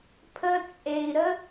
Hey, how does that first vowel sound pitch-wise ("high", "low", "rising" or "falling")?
high